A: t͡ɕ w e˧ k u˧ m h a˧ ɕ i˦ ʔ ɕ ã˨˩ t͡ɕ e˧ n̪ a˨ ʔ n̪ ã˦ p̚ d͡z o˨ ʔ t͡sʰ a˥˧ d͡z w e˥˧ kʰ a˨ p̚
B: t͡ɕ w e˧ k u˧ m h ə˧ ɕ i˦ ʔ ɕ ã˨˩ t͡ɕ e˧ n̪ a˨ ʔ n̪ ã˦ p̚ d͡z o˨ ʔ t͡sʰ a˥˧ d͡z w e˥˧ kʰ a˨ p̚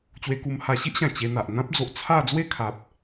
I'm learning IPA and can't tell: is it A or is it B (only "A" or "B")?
A